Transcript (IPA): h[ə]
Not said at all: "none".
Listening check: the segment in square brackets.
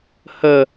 ə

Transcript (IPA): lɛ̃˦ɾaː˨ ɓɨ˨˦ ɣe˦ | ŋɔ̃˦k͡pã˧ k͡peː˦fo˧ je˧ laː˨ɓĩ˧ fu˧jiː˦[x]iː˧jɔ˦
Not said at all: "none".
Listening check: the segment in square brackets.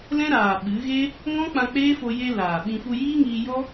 ŋ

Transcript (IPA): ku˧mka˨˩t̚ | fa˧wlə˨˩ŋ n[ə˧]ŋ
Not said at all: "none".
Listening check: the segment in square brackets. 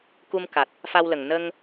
ə˧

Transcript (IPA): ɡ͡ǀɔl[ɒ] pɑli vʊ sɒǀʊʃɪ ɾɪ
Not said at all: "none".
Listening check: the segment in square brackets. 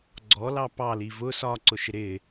ɑ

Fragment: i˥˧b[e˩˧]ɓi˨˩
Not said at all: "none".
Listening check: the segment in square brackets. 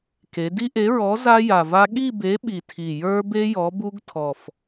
e˨˥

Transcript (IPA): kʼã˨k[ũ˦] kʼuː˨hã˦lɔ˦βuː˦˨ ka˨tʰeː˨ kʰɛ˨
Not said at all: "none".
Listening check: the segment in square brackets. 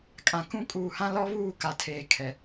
ũ˦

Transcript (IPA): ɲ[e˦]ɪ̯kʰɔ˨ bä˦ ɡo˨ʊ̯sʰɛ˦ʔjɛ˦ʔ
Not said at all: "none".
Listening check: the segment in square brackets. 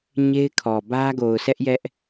e˦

